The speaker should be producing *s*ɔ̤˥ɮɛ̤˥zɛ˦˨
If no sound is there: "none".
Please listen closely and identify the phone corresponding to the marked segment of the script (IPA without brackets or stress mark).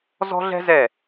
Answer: z